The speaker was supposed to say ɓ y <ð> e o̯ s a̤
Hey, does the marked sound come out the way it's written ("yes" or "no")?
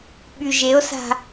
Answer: no